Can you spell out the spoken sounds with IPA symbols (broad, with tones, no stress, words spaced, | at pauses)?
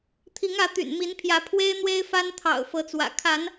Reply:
t̪ʰi˨˦ŋä˨˦t̪y̰˨˩n mi˨˦npʰjä˨˦ pʰwe˦ɪ̯n̪we˦ɪ̯fa˦nt̪ʰɑ̰˨˩ʊ̯ fɤ˨˦t͡swä̰˨˩ kʰa˨˦n